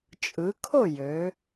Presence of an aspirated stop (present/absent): present